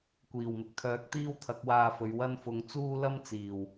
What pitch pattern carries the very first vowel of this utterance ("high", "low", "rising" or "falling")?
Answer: low